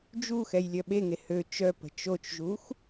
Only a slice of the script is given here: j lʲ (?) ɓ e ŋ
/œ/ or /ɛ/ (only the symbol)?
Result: œ